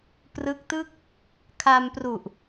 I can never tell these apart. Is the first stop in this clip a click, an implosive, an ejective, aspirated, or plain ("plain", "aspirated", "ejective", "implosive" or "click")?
plain